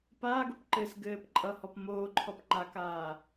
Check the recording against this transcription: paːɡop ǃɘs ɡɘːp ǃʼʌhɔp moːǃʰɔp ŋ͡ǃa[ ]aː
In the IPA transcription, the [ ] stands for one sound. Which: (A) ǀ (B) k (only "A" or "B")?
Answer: B